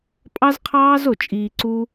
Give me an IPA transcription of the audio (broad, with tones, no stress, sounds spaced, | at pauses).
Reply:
pʼ ɑ˦ z qʰ ɑː˦ z o˨ t͡ʃʼ iː˧ ǀ u˦